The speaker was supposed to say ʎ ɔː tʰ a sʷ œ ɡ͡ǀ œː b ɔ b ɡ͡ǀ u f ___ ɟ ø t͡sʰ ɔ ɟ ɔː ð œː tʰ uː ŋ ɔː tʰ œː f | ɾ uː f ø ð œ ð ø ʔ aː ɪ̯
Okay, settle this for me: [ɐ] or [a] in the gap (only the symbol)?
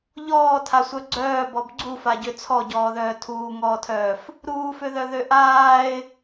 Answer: a